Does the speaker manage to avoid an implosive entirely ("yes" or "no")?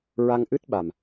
no